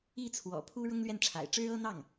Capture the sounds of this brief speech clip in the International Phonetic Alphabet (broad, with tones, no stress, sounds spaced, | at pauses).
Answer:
i˥˩ t͡sʰ w ɔ̰˨˩ pʰ u˥ ɻ ʊ˥ ŋ l ɥ ɛ˥˩ n ʈ͡ʂʰ a̰˨˩ ɪ̯ ʈ͡ʂ ɻ̩˥ ɤ˥ n̪ ɑ˥˩ ŋ